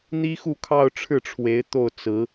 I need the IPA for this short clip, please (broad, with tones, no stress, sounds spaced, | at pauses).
n̪ i˥ x u˥˧ kʰ ɑ˥˧ ʊ̯ ʈ͡ʂʰ ɻ̩˥˩ ʈ͡ʂʰ w e˧˥ ɪ̯ t̪ o˥˩ ʊ̯ t͡s ɹ̩˧˥